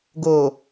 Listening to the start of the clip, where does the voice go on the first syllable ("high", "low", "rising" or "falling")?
low